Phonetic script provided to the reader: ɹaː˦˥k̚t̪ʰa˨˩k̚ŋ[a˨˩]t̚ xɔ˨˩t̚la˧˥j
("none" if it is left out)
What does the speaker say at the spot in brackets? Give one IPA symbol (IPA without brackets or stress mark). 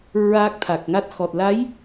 a˦˥